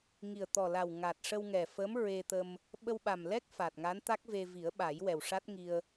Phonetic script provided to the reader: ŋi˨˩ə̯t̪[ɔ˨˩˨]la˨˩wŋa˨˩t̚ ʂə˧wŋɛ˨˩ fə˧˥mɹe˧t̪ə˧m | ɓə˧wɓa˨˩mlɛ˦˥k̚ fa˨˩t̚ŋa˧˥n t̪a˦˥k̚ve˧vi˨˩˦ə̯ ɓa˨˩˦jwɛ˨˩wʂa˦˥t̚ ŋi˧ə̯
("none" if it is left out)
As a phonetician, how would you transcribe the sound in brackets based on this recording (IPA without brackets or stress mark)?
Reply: ɔ˨˩